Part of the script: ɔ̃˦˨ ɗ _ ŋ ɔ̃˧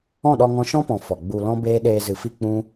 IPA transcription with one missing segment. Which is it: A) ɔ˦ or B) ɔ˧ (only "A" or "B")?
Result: B